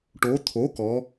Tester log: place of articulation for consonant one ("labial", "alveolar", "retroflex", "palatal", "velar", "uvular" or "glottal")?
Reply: retroflex